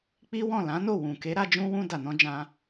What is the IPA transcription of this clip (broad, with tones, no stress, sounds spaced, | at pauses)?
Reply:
k͡p i˦ w ɔ̃˦˨ l ã˨˦ n o˦˨ w ũ˨ k e˨˦ ɾ a˧ d͡ʒ ũ˧ w ũ˧ d a˨ n ɔ̃˧ d͡ʒ ã˧